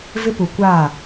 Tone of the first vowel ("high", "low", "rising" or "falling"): high